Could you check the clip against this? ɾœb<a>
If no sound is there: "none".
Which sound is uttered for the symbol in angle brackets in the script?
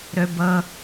ʌ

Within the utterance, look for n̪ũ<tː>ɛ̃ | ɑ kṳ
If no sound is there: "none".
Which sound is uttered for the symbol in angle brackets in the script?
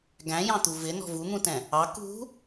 t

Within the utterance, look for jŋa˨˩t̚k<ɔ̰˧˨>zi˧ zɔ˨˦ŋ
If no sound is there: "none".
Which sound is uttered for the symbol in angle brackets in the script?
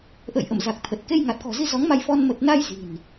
ɔ̤˨˩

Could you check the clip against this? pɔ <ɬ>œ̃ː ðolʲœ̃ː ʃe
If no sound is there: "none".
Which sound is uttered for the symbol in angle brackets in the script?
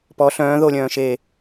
ɬ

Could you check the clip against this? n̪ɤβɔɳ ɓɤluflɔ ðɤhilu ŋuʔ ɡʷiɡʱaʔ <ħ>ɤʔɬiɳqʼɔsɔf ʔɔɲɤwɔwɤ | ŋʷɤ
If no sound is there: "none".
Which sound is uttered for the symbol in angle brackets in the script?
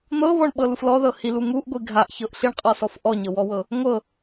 ç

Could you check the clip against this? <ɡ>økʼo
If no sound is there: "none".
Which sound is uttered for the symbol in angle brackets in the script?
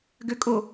ɡ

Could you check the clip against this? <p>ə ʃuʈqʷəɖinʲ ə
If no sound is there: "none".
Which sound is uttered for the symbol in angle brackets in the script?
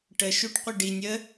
ʈ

